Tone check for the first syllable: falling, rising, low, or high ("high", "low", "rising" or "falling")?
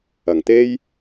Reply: low